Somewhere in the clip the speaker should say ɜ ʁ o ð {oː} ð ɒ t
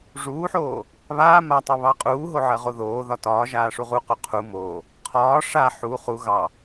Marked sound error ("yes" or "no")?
no